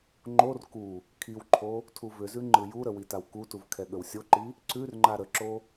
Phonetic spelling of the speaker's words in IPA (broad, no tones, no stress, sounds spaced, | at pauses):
ŋ͡ǃ o r k u | kʰ i w ǃʰ o | tʰ u v ʏ z ʉ ŋ͡ǃ ɯ j u ɾ ə w i t a w k u t u v kʰ ɛ ɠ ə w sʲ o ǃ i | ǀ ʉ r ŋ͡ǃ a ɾ ə ǁ o